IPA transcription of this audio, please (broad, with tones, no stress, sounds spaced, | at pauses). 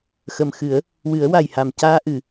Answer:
x ə˨˩ m x ɨ˨˩˦ ə̯ | w ɨ˨˩˦ ə̯ w a˨˩ j h a˨˩ m c aː˧ ʔ ɨ˨˩˨